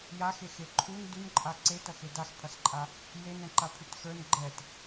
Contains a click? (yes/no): yes